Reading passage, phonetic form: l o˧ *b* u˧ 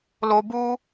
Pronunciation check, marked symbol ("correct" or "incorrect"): correct